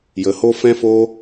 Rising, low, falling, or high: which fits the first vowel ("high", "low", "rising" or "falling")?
low